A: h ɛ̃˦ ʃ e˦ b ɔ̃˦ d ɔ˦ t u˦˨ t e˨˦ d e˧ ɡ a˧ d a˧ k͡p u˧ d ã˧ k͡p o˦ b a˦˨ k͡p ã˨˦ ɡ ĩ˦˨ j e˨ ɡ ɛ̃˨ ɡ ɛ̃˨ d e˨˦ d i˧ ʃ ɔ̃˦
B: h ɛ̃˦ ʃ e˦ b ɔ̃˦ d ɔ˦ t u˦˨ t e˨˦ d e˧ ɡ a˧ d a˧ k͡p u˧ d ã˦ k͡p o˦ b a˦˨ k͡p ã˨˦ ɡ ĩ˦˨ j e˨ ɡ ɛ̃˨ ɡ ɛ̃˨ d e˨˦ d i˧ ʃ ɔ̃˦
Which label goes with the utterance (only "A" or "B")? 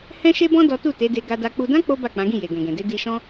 B